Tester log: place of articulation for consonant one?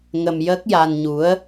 velar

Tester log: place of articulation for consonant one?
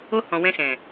glottal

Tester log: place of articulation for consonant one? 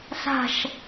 alveolar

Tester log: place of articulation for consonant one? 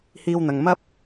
glottal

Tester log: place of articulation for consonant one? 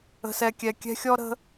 alveolar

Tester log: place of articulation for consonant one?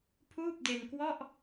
labial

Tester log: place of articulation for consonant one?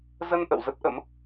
alveolar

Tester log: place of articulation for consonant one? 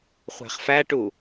uvular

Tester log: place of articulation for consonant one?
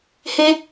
glottal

